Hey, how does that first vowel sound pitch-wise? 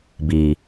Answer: low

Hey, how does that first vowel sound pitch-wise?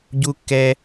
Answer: high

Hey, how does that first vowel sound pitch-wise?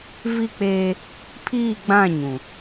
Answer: falling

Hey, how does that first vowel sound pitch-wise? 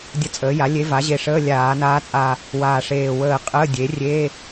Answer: rising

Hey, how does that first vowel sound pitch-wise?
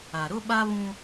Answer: low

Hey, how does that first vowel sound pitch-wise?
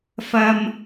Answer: high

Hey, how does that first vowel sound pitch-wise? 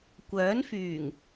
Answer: rising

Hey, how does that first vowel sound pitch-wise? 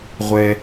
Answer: low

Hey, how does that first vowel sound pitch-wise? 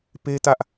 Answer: high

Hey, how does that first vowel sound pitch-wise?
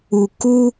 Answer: low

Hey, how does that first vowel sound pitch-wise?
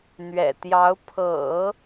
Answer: low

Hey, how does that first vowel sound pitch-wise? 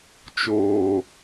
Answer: low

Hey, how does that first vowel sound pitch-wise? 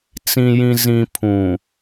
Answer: low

